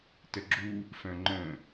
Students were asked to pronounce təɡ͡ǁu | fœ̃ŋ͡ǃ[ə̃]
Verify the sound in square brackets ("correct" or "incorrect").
correct